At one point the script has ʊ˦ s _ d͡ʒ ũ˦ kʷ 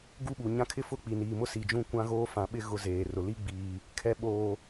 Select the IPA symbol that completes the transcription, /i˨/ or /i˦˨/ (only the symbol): i˨